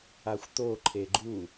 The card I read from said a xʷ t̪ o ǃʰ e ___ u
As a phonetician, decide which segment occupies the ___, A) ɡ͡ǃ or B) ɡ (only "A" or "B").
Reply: A